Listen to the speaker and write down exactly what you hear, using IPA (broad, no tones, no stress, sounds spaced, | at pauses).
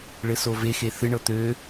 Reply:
ɭ ɘ s o v e x e θ ɨ ɳ ɤ t̪ ø